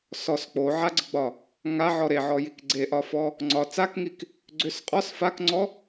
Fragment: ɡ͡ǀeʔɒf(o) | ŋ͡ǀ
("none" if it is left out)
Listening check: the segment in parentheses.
ɔ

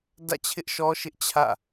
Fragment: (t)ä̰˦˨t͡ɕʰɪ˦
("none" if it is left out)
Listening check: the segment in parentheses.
d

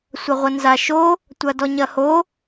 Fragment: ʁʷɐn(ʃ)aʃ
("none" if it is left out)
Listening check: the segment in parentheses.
z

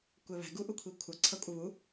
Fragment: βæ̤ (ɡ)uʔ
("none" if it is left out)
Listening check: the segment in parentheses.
ɡ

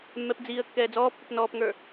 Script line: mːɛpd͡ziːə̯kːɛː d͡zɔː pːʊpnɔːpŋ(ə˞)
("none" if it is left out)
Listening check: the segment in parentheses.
ə˞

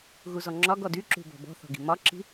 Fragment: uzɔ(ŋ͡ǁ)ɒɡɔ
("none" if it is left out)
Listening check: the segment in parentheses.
ŋ͡ǁ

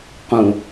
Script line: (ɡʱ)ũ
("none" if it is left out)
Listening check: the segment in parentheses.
q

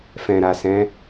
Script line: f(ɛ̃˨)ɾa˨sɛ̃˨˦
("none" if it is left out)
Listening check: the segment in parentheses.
ɛ̃˨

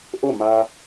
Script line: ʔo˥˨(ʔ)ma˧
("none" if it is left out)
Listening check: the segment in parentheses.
none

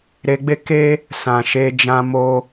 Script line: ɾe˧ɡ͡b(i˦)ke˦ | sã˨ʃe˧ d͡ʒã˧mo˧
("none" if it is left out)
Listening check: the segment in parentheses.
e˦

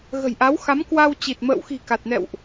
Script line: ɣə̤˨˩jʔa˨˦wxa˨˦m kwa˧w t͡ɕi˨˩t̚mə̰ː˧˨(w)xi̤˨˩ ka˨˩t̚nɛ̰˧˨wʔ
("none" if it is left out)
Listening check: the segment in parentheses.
w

